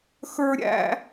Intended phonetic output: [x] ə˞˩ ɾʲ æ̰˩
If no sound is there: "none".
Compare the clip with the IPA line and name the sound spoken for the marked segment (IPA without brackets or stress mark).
x